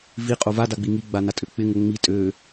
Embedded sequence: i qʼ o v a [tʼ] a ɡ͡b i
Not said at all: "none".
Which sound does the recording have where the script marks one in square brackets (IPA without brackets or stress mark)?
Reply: d